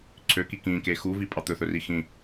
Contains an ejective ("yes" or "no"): yes